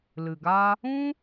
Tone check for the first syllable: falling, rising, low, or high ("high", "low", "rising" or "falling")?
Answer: low